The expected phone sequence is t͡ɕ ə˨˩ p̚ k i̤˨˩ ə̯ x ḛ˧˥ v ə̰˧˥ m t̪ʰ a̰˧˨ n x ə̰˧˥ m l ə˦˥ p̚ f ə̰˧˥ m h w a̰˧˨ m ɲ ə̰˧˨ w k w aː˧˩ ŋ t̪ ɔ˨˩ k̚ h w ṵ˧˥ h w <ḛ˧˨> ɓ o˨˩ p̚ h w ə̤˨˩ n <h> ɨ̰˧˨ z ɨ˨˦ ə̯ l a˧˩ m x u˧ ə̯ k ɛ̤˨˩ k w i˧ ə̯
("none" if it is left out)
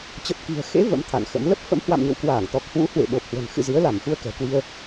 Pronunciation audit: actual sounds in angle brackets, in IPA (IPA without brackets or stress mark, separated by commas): ḛ˧˨, x